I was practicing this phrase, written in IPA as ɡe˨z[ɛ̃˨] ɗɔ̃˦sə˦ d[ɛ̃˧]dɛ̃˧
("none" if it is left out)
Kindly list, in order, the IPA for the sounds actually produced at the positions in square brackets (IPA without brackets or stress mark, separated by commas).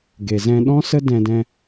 ɛ̃˧, ɛ̃˧